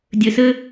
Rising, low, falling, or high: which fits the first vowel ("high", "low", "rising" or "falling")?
low